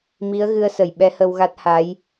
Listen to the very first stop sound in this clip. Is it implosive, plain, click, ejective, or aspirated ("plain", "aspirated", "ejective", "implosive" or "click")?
implosive